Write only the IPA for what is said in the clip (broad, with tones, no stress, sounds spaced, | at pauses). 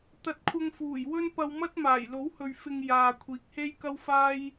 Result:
t̪ ɐ˨ t̚ kʷʰ ɐ˧ ŋ f uː˨˩ j w ɵ˥ n p ɐ˧ w m ɐ˥ t̚ m aː˨˩ j l o˨˥ w h ɵ˨ ɥ f ɪ˧ ŋ j aː˨ kʷʰ iː˨˥ k̚ h e˥ j k ɐ˥ w f aː˥ j